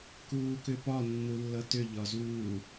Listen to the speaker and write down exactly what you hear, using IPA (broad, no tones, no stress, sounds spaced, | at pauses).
k uː k ʏ p ɒ nː u lː ʌ t ʏ ʎ ɒ z uː